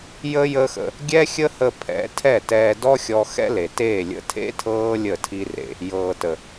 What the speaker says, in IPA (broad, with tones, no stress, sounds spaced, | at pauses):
j ə˦ j əː˦ x ə̰˧ | ɡʲ ɛː˦ xʲ ə˦ h ə˧ pʰ ɛ̰˨˦ tʰ ɛ˦˨ t ɛː˧ d ɔ˦ xʲ ɔ˧ x ɛ̰˦ l e˨ t eː˦˨ lʲ ə̰˧ tʰ ḛ˦ tʰ ɤː˦ lʲ ə˦˨ tʰ i˦ r ḛ˧ | j ɤː˨ t ə˨